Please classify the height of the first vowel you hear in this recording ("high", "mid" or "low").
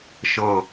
mid